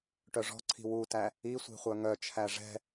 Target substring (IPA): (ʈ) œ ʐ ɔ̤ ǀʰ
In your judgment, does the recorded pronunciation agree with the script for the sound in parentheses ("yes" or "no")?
yes